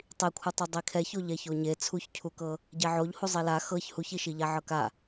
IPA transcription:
tˤ i kʷʰ ɯ tˤ ɤ dˤ i kʰ ɛ ç o ʎ ɛ ç o ɲ e t͡sʰ u ç cʰ u k ɤ | ɟ ɛ ʕ o ʎ h u zˤ i l a x ɤ ç h u ç i ʃ i ʎ a ʕ ɤ k a

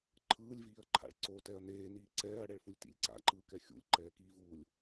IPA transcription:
ǃʰ ɯː lʲ v iː ɐ̯ ǃʰ a̰ ɭ ǀ o t ɛ ɐ̯ n eː n iː ǀ ɛː ɐ̯ ɽ ɛ ɭ f u lʲ t ḭ lʲ ǀ a̰ ǃ ɯː k ɛ xʲ ṵ lʲ ǃ ɛː k iː v uː lʲ

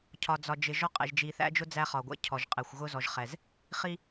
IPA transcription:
cʰ ɒ˨ d͡z ɒ˨ d͡ʒ ɪ˨ ʒ ɔ˦ qʼ ɛ̰˨ ʒ d͡ʒ i˨ θ æ̰˦ d͡ʒ ʊ˦ d͡z æ˦ χ ɒ˨ ɡʷ ɛ̰˦ cʰ ɔ˨ ʒ qʼ ɛ˨ xʷ ɣ ʊ˦ z ɔ˨ ʒ χ ɛ˨ z | χ i˦

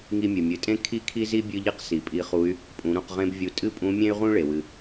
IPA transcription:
ŋ i˧ mʲ ɨ˩ mʲ ɨ˩˧ tʼ ẽ˥ kʰ i˥ kʰ i˥ z i˥ bʲ ɨ˥ ʎ i˥ q s i˩ pʼ i˧˥ χ u˧˥ y̯ | pʼ ũ˩˧ ɾ ũ˩˧ q ʁ ẽ˥ b vʲ u˧˥ tʼ ɨ˥ pʼ ũ˧˥ mʲ ẽ˥ y̯ ʁ ũ˥ ɭ e˩ w ɨ˩

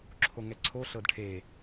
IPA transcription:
ǁʰ o ŋ ɛ ǀʰ o ɬ ɤ d ʈʰ e

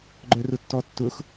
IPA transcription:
ɡ͡ǃ œ r ʊ tː ɔ tː ʊ x

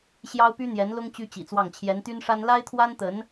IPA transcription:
ɕ j ɑ˥ ʊ̯ p y˥ n̪ j ɛ˧˥ n l ʊ˥ ŋ t͡ɕ y˥ t͡ɕ ḭ˨˩ t͡s w ɑ˥˩ ŋ t͡ɕʰ j ɛ˧˥ n t̪ y˥ n ʂ a˥ n l a˥ ɪ̯ t̪ʰ w a˥ n t̪ ə˧˥ n

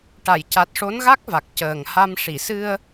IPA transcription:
ʈ a˨˩˨ j c a˨˩ t̚ ʂ o˧˥ n ɣ a˦˥ k̚ v a˨˩ k̚ c əː˨˩ ŋ h a˧ m ʂ i˨˩˨ s ɨ˧ ə̯

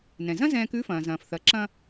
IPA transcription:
n ɛ̃˩ z ɐ̃˥ z ɛ̃ː˧ k ʉ˧˥ f ɐ̃ː˩ z ɐ̃ː˩ f θ ɐ˩˧ ǁ ɐ̃˧

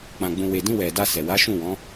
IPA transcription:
k͡p ã˧ ɡ͡b ũ˧ w e˨ d ĩ˧ w ɛ˨ d a˧ s ɛ˨ w a˨˦ ʃ ũ˦˨ w ɔ̃˨˦

